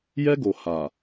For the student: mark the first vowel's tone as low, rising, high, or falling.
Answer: high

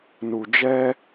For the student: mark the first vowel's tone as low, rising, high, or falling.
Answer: low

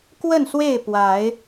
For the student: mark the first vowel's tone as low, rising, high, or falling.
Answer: falling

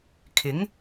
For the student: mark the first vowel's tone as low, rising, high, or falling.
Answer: rising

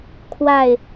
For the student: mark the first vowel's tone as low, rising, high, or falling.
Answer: falling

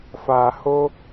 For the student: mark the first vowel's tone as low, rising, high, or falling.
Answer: low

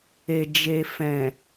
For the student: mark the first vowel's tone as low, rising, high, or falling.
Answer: low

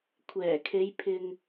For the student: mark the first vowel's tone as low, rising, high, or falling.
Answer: low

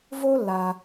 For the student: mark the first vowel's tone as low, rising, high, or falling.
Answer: high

